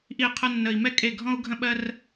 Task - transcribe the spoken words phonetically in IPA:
ʔ i˦˨ qʰ ə˦ nː ə˧ i̯ m ɛ˦ kʼ e˦˨ ɡʱ ɔ̃˦ u̯ ɡʱ ə̃˦ ɓ ɜ˦ r

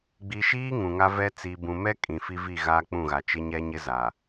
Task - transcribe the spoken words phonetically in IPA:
ɡ͡b i˨ ʃ iː˦ ŋ ũ˨ ŋ a˦ v ɛ˦ t͡s iː˨ b ũ˨ m ɛ˦ kʼ ĩ˨ f i˦ v i˦˨ ɣ aː˦ k͡p ũ˦˨ ɣ a˨ t͡ʃ ɪ˦ ɲ ɛ˦ ɲ ɪ˦ z a˨

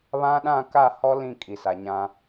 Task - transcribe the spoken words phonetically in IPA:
β ã˦ ɗ ã˦˨ k a˦˨ h ɔ˦ l ĩ˦˨ kʼ i˨ s a˨ ɲ ã˦

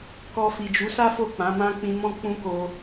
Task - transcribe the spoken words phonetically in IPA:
k ɔ˧ f i˨ d͡ʒ u˨˦ s a˦ f o˦˨ k͡p ã˨˦ m ã˦ k͡p ĩ˧ m ɔ̃˦ k͡p ũ˦ k o˧

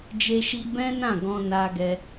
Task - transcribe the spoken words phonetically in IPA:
d͡ʒ e˧ ʃ i˧ b ɛ̃˦ n ã˦˨ ɡ ɔ̃˧ n a˧ ɡ ɛ˧

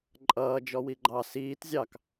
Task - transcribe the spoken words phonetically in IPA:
ǃʼ ʌː d͡ʒ ɔ w i ɡ͡ǃ ɑ s iː t zʲ ɑ k

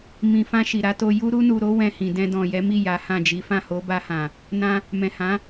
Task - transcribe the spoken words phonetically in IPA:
m ĩ˨ f ã˧ ʃ i˨ ɾ a˨˦ t o˧ j u˧ ɾ u˧ n u˨ ɾ o˨˦ w ɛ̃˧ h ĩ˨ d ɛ̃˧ d ɔ̃˨ j ɛ˨˦ m i˦˨ j a˨˦ h ã˦˨ d͡ʒ i˨˦ f ã˦˨ h o˨˦ b a˧ h ã˨ | n ã˧ | m ɛ̃˨ h ã˨˦

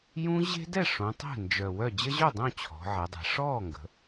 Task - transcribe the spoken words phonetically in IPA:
j ũ˦˥ ʑ e̤˦˥ d ɛ˥˨ ʂ õ˩˧ tˤ ɛ̤˥˨ n d͡ʒ œ˨˩ w œ˥˨ d͡ʑ ə˦˥ ʑ œ˥˨ dˤ õ˥˨ t͡ɕʰ ɔ̤˩˧ ʕ ɛ˩˧ dˤ e̤˩˧ ʂ ɔː˥˨ ŋ ɡ ə̤˩˧

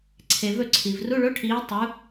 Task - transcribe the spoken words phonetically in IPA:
ǀʰ e˨ v ɵ˥˩ ǀʰ i˨ v r u˧˥˧ ɭ o˧˥˧ ʈʰ iː˨˦ tˤ u˨˦

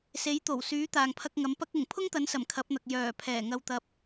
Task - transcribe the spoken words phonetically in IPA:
s e˨˥ j t̪ o˨˩ w s yː˨˥ t̪ aː˨ ŋ pʰ ɐ˧ k̚ ŋ ɐ˨˥ m p ɐ˧ k̚ ʊ˨˩ ŋ pʰ ʊ˥ ŋ t̪ ɐ˨˥ n s ɐ˨˩ m kʰ ɐ˨˥ p̚ n̪ ɐ˨ k̚ j œː˨˩ pʰ ɛː˨˩ ŋ ɐ˧ w t̪ ɐ˧ p̚

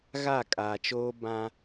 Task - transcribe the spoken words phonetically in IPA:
ɣ a˦˨ kʼ aː˨ t͡ʃ oː˦ b ã˦

